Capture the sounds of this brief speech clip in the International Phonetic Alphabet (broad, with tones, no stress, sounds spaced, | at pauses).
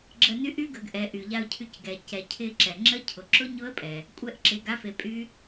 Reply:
ɡ͡ǁ ə˧ n y˦˥ ʔ y˦˥ ɡ ə˩˧ ɡ ʔ ɛ˩˧ ʔ y˩ ʎ a˧ ʊ̯ cʰ y˧ c ɡ ɛ˩ c ɛ˩ cʰ ɪ˧ ǁ ɛ˩ ŋ͡ǁ ə˦˥ cʰ ʊ˩˧ ǁ ʊ˦˥ ɲ ʊ˦˥ ə̯ pʼ ɛ˩ | kʷʼ ɛ˦˥ ʔ ǁ ɪ˩˧ ɡ a˦˥ f e˩˧ pʼ y˦˥